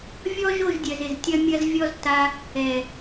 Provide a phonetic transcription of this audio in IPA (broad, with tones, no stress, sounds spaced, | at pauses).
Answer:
vʲ ɔ˦ ʒ o˦˨ ʒ dʲ œ˨ z ɪ˨ z tʲ ɐ˦ mʲ ɐ˦ z vʲ ɔ˦ z t a˧ | ɛ˨